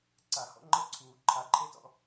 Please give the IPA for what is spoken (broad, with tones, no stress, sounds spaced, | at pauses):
ǀ a˨˩˦ h ɔ̰˥ ŋ͡ǃ ɤ˥ ǀʰ uː˨˩˦ ǃʰ a˨˩˦ ǃʰ e˥ t ɔ̰˥